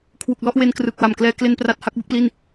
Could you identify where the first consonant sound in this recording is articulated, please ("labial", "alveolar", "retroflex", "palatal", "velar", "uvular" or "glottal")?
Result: velar